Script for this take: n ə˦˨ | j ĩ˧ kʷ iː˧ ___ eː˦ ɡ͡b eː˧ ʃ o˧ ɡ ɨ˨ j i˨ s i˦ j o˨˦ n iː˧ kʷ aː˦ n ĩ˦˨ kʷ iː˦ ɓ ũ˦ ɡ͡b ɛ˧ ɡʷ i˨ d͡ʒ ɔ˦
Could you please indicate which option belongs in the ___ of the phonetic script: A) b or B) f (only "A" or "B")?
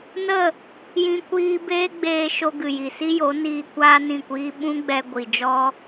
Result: A